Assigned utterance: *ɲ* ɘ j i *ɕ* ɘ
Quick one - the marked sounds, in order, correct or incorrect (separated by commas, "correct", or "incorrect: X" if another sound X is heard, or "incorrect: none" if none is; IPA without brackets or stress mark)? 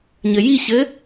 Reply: correct, correct